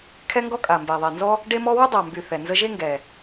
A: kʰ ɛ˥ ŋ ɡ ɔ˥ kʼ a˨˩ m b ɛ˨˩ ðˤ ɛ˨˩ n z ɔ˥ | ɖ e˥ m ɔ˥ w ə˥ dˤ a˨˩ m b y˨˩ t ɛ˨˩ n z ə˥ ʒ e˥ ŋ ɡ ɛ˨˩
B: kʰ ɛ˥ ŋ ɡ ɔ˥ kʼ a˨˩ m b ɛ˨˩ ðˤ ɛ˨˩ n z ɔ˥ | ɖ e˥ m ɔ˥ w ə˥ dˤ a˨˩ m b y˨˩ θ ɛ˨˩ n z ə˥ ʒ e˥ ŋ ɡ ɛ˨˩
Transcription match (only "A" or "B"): B